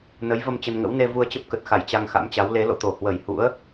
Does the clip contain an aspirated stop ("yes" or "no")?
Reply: no